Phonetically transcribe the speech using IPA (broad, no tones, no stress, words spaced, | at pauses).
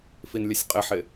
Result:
finlʲəsʲqʼɪħɪ